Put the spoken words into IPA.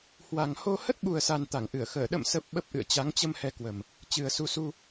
h w a˨˩ ŋ h o˧ h ə˦˥ t̚ ɓ u˨˩ ə̯ s a˨˩ n t̪ a˧˩ ŋ ʔ ɨ˧˩ ə̯ x əː˧˩ ɗ ə̰˧˨ m s ə˨˩ p̚ ɓ ə˦˥ p̚ ʔ ɨ̰˧˨ ə̯ t͡ɕ a˨˦ ŋ t͡ɕ ə˧ m h ɛ˨˦ k w ə˨˩ m | t͡ɕ ɨ˨˩ ə̯ s u˨˦ s u˧

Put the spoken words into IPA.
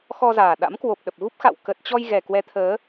x ɔ˧ z aː˨˩ ɗ a̰˧˥ m k w o˨˩ p̚ ɗ ə˨˩ p̚ ɣ u˦˥ p̚ x a̰˧˨ w k ə˨˩ t̚ t͡ɕ ɔ˧ j ɣ ɛ˨˩ k w ɛ˨˦ t̪ʰ əː˨˦

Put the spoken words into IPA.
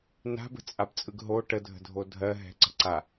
n a̤ b ə̤ t͡sʼ a b t͡sʼ ɯ ɡ ɦ o ʈ ə dʱ ə̤ dʱ o dʱ ɜ ɦ ɛ̤ ǀ ə̤ ǀ a

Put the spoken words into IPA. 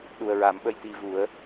ɗ u˨˩ ə̯ ɹ a˨˩˦ m ɓ ə˧ j t̪ i˧ v u˨˩˦ ə̯

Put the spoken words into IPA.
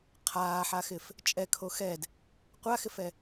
qʰ aː ħ a x ɪ f | t͡ʃʼ ɛ kʰ o x ɛ d | qʷ a x ɪ f ɛ

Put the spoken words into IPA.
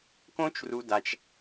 k õ˦ t͡ʃ r u˧ d a˧ t͡ʃ

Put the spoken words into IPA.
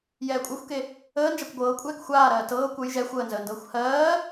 j ɛː kʷʼ ɜ xʷ k e | əː n d͡ʒ a kʷ ɡʷ ɤː kʷʼ ɛː k xʷ aː ɾ ɜː t ɤː kʷ ə j ʒ ɛ xʷ əː n z əː n d ɤː xʷ h ɜː

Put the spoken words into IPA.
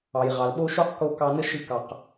ɑ˩ j ʁ ɑ˩ l ɓ o˥ ʃ o˥ q k o˧ k ɑ˧ n ə˥ ʃ ɨ˧ k ɑ˩ q

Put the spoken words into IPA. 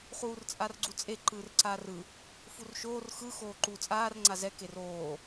χ uː r t͡sʼ a r ɡ͡ǀ u t͡sʼ e ǃ ɯː r ǀ aː r ɯ | f u r ʃ oː r x ɯ x oː ǃ uː t͡sʼ aː r ŋ͡ǀ a z ɛ k e r oː

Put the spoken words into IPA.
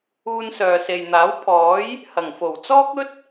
uː˧ n s œː˨ s e˨ j n̪ aː˨˥ w pʰ ɔː˨˥ j | h ɐ˨˩ ŋ f o˨˩ w t͡s ɔː˥ k̚ ɵ˥ t̚

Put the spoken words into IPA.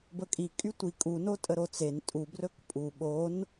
b ə kʼ i kʼ y tʷ i kʼ u n o tʼ ə ɾ o t͡s e n tʼ u b r ɵ k pʼ u ɓ o n

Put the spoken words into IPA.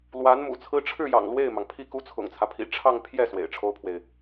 l w a˧˥ n m ṵ˨˩ t͡sʰ ɹ̩˥ ʈ͡ʂʰ ɻ̩˥˩ j ɑ̰˨˩ ŋ l w e˥˩ ɪ̯ m ɑ˩ ŋ pʰ i˥˩ k u˥ t͡sʰ ʊ̰˨˩ ŋ t͡sʰ ä˦ pʰ ḭ˨˩ ʈ͡ʂʰ ɑ˥˧ ŋ pʰ j ɛ˥˩ s w ḛ˨˩ ɪ̯ ʈ͡ʂʰ o˥ ʊ̯ pʰ w e˨ ɪ̯

